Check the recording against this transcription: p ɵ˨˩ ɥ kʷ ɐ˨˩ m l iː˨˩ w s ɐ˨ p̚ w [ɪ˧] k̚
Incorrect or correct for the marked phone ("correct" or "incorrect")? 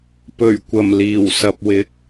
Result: incorrect